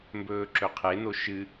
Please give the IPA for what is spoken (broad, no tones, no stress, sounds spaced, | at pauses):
m b ɵː ǁ ɵ qʰ e n o ʃ ɨ